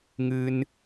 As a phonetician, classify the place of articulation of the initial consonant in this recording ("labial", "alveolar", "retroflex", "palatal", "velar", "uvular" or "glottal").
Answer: velar